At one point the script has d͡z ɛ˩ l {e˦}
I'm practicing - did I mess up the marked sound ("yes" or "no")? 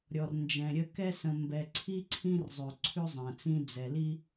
yes